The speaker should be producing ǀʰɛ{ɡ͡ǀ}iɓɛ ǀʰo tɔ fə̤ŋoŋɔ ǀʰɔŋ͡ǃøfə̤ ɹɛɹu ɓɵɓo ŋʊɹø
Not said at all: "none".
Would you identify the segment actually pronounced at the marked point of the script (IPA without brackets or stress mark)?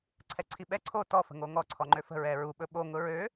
ǀʰ